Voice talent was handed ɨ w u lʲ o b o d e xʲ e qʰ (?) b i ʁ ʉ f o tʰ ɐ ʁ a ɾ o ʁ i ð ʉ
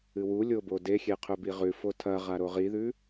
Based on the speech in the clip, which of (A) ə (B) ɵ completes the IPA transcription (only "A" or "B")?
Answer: B